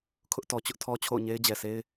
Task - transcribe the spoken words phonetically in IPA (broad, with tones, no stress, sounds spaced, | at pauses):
kʰ ʊ˦ ʔ t ɔ˨ t͡ɕ ʊ˦ ʔ tʰ ɔ˦ t͡ɕʰ o̰˦˨ ʊ̯ ɲ e˦ ɪ̯ d͡ʑ ɛ˨ sʰ e˦ ɪ̯